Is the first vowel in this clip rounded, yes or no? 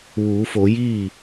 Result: yes